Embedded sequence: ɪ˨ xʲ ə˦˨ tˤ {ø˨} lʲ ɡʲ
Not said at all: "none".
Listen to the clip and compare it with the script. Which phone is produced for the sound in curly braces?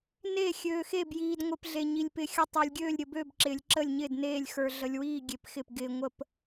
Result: ø˨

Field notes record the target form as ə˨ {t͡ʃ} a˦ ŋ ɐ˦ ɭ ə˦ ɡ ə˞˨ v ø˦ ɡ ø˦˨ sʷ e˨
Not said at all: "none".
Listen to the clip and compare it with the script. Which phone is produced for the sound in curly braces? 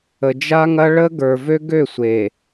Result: d͡ʒ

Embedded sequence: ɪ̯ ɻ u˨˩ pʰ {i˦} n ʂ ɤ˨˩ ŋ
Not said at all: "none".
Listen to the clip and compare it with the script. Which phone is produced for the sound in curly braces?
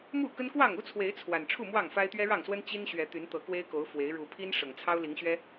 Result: i˦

